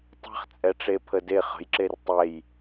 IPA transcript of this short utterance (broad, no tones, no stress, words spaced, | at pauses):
tˤe̤χt͡sʼɛʈ͡ʂe pʰəde χə̤jǁer tˤɛj